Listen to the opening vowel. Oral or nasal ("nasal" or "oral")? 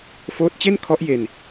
oral